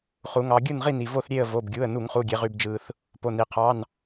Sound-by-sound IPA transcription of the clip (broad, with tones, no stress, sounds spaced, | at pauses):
χ u˩˧ ŋ ɑ˩˧ ɡʲ ɯ˦˨ n ʁ i˦˨ n i˩ v o˦˨ θ ɾʲ e˦˨ ə̯ v o˩˧˩ b ɡʲ u˩˧˩ ə̯ n u˧˩˧ ŋ χ u˩˧˩ ɡʲ e˩˧ ʁ y˩ b d͡ʒ ɯ˩ θ | p o˩˧˩ n i˩ qʰ ɑ˩˧˩ n